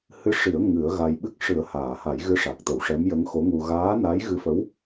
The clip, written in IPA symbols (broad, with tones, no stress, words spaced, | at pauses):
hɨ˧˥ ʂi˨˩˦ə̯ ŋɨ˨˩˦ə̯ɣa˧jɓɨ˦˥k̚ ʂɨ˨˩˦ə̯haː˨˩˨ha˨˩˦j ɣɨ˧˥ʂa˨˩k̚t̪ə˨˩˦w ʂɛ˧˥mjə˧˥ŋxo˧˥ŋu˧ ɣaː˧˥na˧˥j ɣɨ˧˥fə˧˥w